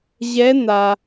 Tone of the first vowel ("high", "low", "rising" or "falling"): rising